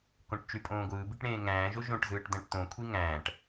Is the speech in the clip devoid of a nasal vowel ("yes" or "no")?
no